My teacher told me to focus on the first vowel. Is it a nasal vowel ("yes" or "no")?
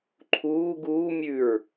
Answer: no